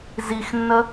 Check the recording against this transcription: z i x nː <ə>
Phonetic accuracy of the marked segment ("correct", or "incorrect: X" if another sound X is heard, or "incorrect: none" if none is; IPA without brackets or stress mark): correct